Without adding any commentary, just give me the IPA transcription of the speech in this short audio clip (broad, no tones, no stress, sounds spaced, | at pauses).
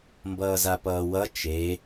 m b ʌː z a p ʌː w ʌ t͡ʃ e